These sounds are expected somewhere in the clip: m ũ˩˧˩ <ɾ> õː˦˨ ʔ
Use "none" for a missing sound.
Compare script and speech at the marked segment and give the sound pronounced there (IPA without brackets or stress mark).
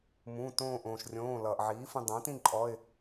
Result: t